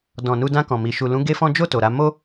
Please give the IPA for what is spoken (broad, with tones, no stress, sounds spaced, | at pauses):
d ɔ̃˨ n u˧ d ã˧ k ɔ̃˨ m i˨ ʃ u˨ l ũ˨˦ ɡ e˦ f ɔ̃˦ d͡ʒ o˦˨ t o˨ ɾ a˧ m o˦